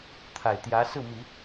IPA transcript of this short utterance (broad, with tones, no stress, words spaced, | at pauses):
t̪ʰa˨˩ɪ̯t̪jä˧˥ sɹ̩˥˩mi˨˩˦